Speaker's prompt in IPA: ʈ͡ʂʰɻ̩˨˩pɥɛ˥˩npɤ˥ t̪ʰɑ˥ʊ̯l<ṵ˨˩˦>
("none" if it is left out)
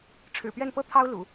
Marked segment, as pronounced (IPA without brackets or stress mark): ṵ˨˩˦